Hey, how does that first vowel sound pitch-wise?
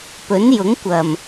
rising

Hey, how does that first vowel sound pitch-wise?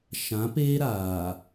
rising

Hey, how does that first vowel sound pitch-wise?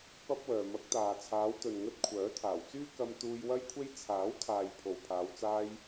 high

